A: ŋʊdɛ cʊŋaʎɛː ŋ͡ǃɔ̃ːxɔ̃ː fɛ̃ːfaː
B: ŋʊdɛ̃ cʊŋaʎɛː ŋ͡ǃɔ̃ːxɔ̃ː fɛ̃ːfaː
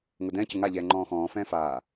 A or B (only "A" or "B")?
B